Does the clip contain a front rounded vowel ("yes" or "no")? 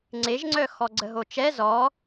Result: yes